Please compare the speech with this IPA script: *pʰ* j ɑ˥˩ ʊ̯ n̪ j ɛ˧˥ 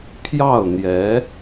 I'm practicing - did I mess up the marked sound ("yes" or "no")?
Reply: no